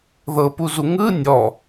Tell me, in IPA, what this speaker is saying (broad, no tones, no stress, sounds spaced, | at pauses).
ð ɤ p u z u ŋ ɯ nʲ ɔ